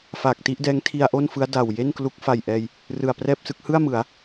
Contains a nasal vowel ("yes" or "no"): no